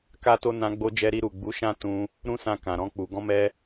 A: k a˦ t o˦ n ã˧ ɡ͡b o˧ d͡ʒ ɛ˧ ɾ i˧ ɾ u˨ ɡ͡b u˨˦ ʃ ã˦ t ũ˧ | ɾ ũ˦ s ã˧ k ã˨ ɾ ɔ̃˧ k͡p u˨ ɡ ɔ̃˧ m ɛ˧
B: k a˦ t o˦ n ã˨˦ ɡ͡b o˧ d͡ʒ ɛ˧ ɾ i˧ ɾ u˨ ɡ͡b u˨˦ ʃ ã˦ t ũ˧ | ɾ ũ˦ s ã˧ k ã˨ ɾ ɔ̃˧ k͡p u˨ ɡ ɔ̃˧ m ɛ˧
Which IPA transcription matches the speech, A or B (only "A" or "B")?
A